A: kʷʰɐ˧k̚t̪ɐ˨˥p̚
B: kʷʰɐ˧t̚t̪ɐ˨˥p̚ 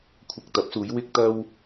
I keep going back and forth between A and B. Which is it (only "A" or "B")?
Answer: A